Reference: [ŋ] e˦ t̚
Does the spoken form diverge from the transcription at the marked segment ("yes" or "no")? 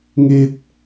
no